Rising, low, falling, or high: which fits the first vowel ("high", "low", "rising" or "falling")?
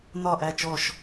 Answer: falling